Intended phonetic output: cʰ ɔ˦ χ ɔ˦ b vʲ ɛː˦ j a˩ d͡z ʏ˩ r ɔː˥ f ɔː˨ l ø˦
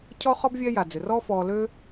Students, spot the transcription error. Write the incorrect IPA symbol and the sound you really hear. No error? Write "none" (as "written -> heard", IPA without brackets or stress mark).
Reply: none